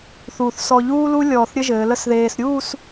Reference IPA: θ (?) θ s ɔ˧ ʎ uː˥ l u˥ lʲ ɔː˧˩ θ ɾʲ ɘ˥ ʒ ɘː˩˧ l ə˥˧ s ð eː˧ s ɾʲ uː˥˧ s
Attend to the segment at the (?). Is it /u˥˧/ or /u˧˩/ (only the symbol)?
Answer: u˧˩